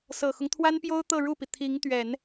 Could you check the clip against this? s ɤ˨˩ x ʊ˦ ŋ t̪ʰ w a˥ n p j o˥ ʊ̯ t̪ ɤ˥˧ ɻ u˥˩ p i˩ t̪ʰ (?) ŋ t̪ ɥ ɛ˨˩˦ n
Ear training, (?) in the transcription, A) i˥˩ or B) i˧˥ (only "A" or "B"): B